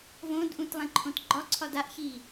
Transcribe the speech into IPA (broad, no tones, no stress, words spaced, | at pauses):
võdʔũt lˠẽǃʰõtɡ͡ǃɒǀʰɒd aʔçi